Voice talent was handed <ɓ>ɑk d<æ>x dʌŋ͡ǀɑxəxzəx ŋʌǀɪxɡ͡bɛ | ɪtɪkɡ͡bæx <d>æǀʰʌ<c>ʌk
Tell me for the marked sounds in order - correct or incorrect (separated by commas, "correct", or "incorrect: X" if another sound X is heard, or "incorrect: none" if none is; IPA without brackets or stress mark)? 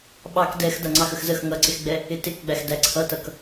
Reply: correct, incorrect: ɛ, correct, incorrect: t